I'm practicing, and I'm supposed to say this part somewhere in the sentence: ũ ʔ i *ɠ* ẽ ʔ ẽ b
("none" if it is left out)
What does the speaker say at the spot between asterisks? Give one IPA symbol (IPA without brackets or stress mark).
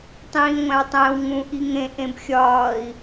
ŋ